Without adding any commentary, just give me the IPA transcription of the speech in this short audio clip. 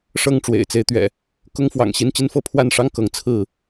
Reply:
ʂ ɤ˥˨ ŋ ʈ͡ʂ w ḛ˨˩ ɪ̯ t͡s e˦ ɪ̯ t̪ ɥ ɛ̰˨˩ | k ʊ˦ ŋ f w ɑ̰˨˩ ŋ ɕ i˦ n t͡ɕ i˦ n f ɤ˥˨ pʰ w a˥˨ n ʂ ɑ˦ ŋ k ɤ˨˦ ŋ t͡sʰ ɹ̩˥˨

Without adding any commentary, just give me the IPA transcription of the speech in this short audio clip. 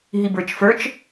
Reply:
ɦ i b ə˞ t͡ʃ f ə˞ t͡ʃ

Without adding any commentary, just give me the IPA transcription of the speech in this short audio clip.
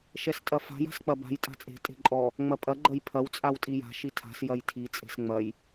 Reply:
ʃ ɛ s tʼ ɐ f a̤ j a̤ s k͡p ɐ b a̤ j tʼ a̤ t͡sʼ e̤ tʼ e̤ ǃʼ ɔ | ŋ͡m ɐ pʼ ɐ ɡ͡ǃ ɐ j pʰ ɐ w t͡sʼ a w tʼ i j a̤ ʃ i tʰ a̤ s j ɐ j tʰ i t͡sʼ e̤ s ŋ͡m ɐ j

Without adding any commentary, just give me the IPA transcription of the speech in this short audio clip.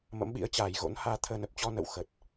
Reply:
m ə̰˧˥ m ɓ ḭ˧˥ ə̯ t͡ɕ aː˨˩ j ɣ o̰˧˥ n h aː˧ t̪ʰ əː˧ n ə˨˩ p̚ t͡ɕ ɔ˧ n ə̰˧˨ w x ə˨˩ t̚

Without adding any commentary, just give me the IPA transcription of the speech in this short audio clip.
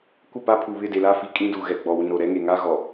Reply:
kʷ ɪ˦˨ p a˦ pʰ u˨ β ɪ˦˨ d e˨ l a˦ f i˨ kʼ ĩ˦ d u˨ ɣ ɛ˨ ɡ͡b ɔ˨ w ĩ˨ ɾ o˨ ɾ ɛ˦ ŋ e˨ ŋ a˦ ɣ ɔ˨

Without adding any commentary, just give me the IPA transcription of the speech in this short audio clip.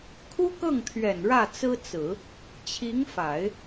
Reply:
kʰ u˥ k ɤ˥˩ ŋ t̪ʰ ɥ ɛ˨˩ n ɻ ä˥˩ t͡s ɹ̩˥ t͡s ɹ̩˨˩˦ | t͡ɕʰ i˧˥ ŋ f a˨˩˦ ɪ̯

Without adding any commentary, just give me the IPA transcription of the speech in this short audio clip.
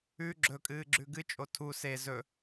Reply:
ʉ ɡ͡ǁ ɵ kʼ ɨː ɡ͡ǁ ʉ ɡ ɨ t͡ʃʼ o tʰ u s e z ɵ

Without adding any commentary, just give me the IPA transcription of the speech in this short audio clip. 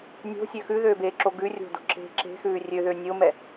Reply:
nʲ o̤ sʲ ø x ʉ ð øː b eː ǁ o ɡ ʉ rʲ o̤ d o̤ ǁ e̤ ǁ e̤ x ʉː rʲ ø ð ø nʲ o m ɛ

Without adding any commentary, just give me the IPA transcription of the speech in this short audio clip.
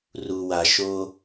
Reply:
r u˨ w a˨ ʃ o˦

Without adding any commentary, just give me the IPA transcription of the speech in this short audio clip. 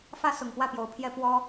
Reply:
f ä˦ s ʊ˨˩ ŋ p w ä˥˨ p j o˨˩ ʊ̯ pʰ j ɛ˦ p w ɔ˦

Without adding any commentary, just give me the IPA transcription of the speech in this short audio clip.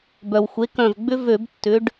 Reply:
b œ˩ w xʷ e˩˥ k œ̃˧˩ v ɡ͡b ʏ˥ v ø˧˩˧ b tː ʏ˩˥ ɖ

